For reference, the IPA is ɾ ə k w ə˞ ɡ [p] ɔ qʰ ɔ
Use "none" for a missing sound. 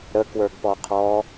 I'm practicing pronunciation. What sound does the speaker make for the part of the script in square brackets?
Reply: p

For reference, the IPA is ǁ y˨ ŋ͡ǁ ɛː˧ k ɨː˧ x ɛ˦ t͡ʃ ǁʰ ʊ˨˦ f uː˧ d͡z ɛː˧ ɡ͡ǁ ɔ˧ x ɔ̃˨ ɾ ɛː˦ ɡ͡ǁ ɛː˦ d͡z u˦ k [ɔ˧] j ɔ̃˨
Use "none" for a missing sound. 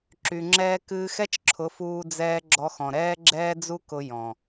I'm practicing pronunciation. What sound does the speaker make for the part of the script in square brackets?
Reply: ʊ˧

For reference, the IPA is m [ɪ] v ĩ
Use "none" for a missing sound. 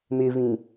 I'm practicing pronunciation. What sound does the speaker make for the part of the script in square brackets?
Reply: ɪ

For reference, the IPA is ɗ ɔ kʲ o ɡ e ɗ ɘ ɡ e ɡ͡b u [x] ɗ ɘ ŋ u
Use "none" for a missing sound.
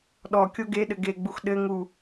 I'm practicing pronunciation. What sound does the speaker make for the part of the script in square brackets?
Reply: x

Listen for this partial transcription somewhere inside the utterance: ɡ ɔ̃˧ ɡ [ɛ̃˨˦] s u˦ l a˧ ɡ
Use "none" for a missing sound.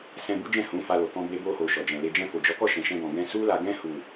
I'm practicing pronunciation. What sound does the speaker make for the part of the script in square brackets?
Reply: ɛ̃˧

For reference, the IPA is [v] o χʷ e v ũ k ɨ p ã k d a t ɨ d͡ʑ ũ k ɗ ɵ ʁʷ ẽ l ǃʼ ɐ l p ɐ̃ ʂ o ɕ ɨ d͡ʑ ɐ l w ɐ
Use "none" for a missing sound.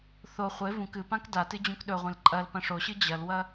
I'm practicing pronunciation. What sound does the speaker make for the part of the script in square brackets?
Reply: θ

